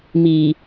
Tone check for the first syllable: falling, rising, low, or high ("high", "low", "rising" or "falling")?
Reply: low